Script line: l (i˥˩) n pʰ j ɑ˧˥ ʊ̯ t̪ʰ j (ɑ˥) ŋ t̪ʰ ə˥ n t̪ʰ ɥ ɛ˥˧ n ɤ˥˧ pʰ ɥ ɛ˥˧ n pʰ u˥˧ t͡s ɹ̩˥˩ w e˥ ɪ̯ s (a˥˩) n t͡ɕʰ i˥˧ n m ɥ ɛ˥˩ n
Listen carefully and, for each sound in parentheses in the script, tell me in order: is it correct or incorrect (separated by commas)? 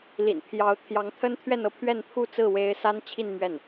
incorrect, incorrect, incorrect